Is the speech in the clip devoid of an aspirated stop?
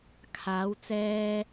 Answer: no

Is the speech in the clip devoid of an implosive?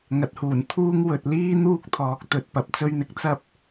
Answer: yes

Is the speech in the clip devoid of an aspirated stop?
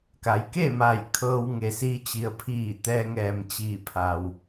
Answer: no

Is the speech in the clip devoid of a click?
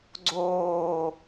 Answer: no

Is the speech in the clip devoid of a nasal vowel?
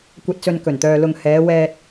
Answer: yes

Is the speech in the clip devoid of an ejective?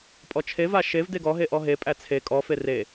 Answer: no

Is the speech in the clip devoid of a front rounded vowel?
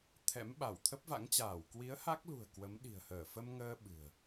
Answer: yes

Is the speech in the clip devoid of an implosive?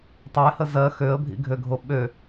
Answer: no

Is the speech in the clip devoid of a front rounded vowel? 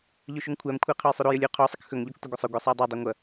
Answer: yes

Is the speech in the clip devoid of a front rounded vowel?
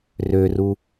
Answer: no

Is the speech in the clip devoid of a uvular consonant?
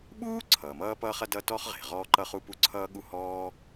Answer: no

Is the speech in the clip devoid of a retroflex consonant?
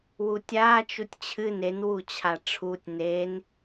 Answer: no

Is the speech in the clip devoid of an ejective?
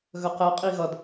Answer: no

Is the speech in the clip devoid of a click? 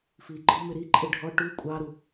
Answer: no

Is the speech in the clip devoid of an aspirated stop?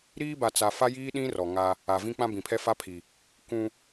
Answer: no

